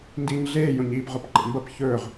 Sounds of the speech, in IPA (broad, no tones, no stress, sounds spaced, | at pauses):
n d iː ɲ ɮ eː j õ ɲ iː p ʁ o p ǃ ḛ m b ɐ p ç ɵː ʁ